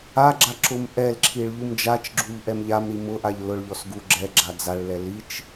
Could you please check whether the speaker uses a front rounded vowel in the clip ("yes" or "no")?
no